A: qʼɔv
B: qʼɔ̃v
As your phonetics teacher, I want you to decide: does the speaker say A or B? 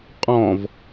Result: B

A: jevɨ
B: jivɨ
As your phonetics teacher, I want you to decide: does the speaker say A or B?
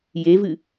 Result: A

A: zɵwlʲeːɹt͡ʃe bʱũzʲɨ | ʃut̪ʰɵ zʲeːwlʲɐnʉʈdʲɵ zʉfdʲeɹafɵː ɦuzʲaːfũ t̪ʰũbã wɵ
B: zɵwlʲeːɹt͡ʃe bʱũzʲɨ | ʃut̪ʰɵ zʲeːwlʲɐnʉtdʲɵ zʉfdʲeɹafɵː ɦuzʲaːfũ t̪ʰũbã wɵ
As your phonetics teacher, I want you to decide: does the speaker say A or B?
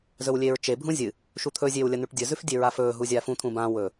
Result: A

